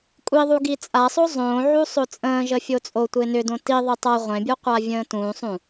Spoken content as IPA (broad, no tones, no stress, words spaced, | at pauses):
kʷʼiðˤu ɡit͡sʼasˤo zˤõːʕu sˤot͡sʼə̃ːʒə fʲot͡sʼotʷe nʏdõ ti ðˤetˤa ʁʷẽbʲuqʷa vʲə̃ːtũːsˤũ